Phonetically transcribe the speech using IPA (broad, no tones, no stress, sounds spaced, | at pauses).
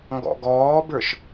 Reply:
ŋ ɡ ɔ̰ ɡ ɔː b ə˞ ʃ